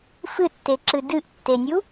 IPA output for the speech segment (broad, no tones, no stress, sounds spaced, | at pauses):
f ɨ tː e ǁ ɨ d ɨ ʔ tː e nʲ u